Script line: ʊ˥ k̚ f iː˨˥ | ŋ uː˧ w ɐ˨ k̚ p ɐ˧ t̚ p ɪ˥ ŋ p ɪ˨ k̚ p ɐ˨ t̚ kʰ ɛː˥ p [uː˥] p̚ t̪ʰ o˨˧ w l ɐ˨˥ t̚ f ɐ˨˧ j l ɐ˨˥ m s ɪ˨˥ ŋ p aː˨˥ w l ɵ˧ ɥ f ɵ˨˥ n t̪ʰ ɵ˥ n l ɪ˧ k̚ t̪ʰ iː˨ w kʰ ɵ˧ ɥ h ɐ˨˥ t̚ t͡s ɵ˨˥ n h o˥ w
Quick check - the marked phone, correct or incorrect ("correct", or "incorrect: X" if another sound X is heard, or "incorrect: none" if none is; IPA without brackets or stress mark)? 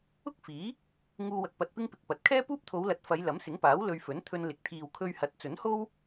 correct